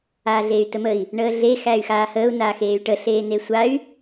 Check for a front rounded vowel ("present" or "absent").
present